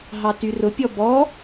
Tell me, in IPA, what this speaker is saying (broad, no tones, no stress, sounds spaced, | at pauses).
ɦ ɑ t y r ʊ pʲ ɔ b ɔ